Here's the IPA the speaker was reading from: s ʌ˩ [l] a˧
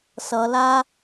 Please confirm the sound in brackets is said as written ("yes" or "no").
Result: yes